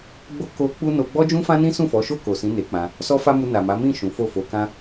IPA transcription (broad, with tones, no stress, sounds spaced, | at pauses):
ɡ͡b o˧ k o˧ k͡p u˦ n o˧ ɡ͡b ɔ˦ d͡ʒ ũ˦ f ã˦ n ĩ˦ s ũ˦˨ f ɔ˨˦ ʃ o˦˨ k o˨ s ĩ˨˦ n e˧ k͡p ã˧ | s ɔ˦ f a˦ m u˧ n a˨ m a˨˦ m ĩ˦˨ ʃ ũ˨˦ f o˦˨ f o˨˦ k ã˦